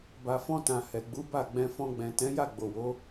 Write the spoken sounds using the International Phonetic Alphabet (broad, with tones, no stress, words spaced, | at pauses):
ba˨fɔ̃˧tã˨ hɛ˨ɡ͡bu˨˦ba˦˨ɡ͡bɛ̃˧ fɔ̃˧ɡ͡bɛ̃˨ tɛ̃˨˦ja˦˨ ɡ͡bo˨wo˨˦